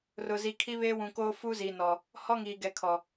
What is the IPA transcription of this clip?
r ʊ˨ z i˨ kʰ i˦ β e˦ w ũ˨ k oː˦ f u˦ z iː˨ n ɔ˨ | h ɔ˦ ŋ iː˨ ɡ ɛ˨ kʰ ɔ˨

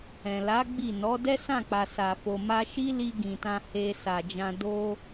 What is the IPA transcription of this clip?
ɛ̃˨ l a˨˦ ɡ͡b i˦˨ n ɔ˨˦ d ɛ˦ s ã˦˨ k͡p a˨ s a˨ f o˨ m a˧ ʃ i˦ l i˧ ɡ ĩ˨ t ã˧ h e˧ s a˨ d͡ʒ ã˧ d o˧

